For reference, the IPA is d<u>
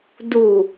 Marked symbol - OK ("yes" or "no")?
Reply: yes